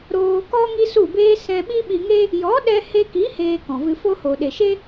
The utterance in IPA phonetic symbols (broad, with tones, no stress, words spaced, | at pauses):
ɾoː˧kɔ˦ ŋi˦su˦˨beː˦ sɛ̃˧ɓi˦ɓi˧ŋe˦ | jɔ˨˦ɗɛ˧ he˧ki˨˦ heː˧kɔ̃˨vɨ˧fo˦ ho˨ɗe˨ʃe˦